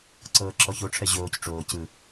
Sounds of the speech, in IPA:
ǀ ɤː ǁ ɔ ç o ʈ͡ʂʰ ɛ ʑ oː c ʈ͡ʂ oː c ɯ

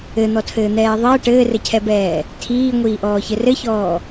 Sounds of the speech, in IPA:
ɘ n̪ ɔ tʰ ɘː n̪ ɛː ðˤ əː ʈ ɘː r ɘ cʰ ɛ b ɛː | tʰ iː ŋʷ iː ʔ ɔː ç ɘ r ɘ ç ɔː

